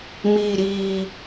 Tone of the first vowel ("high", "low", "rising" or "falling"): low